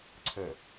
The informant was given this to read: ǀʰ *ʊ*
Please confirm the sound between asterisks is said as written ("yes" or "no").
no